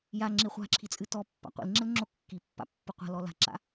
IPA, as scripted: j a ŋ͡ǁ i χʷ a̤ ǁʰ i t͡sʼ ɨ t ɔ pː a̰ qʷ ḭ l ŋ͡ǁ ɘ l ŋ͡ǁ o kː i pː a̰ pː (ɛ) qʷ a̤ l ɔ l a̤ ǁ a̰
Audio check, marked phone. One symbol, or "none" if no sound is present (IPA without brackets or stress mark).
ɨ